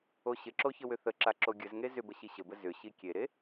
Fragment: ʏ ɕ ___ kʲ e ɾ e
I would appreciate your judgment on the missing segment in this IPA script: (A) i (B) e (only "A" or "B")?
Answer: A